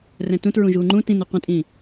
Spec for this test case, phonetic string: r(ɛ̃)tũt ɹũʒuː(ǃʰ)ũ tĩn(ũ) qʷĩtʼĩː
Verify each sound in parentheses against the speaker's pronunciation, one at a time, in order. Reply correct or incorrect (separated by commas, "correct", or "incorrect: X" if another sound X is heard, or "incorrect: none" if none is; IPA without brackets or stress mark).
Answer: correct, incorrect: ŋ͡ǃ, incorrect: u